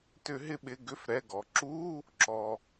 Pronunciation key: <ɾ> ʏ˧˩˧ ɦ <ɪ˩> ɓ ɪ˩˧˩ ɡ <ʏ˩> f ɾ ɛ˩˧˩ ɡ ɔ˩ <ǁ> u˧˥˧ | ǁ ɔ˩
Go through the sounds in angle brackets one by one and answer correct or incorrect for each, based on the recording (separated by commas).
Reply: incorrect, incorrect, incorrect, correct